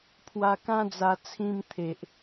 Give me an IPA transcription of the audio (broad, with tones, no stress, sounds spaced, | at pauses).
pʰ w a˧ k ã˦ d͡z a˧ t͡sʰ ĩ˧ m t̪ʰ e˨ ʔ